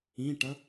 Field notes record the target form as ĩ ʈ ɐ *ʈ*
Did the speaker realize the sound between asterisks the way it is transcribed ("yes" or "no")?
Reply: no